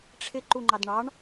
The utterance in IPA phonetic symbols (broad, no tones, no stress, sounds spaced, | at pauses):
ʈ͡ʂʰ ɪ ǃ u ŋ͡ǃ ɑ d ɳ ɑ ɳ